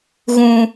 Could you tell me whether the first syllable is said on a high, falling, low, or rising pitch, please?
low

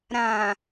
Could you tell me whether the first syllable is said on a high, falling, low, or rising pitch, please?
low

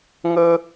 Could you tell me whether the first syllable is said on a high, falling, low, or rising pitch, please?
high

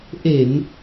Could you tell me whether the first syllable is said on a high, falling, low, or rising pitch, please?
low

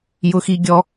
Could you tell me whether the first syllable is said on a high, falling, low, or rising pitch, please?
high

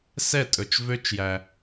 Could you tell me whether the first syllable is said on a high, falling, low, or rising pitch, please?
falling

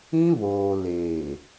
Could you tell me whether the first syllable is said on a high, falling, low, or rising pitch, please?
high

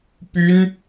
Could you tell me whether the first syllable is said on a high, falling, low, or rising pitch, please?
high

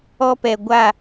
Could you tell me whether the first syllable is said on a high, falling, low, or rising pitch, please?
high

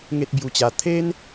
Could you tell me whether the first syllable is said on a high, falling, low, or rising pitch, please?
high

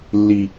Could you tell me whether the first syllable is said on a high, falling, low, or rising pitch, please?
high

